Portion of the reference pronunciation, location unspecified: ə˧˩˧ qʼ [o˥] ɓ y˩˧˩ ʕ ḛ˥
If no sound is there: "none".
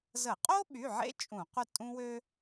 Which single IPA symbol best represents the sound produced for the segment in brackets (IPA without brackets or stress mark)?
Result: o˥